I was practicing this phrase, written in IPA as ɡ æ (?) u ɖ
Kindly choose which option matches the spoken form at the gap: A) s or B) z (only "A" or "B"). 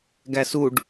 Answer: A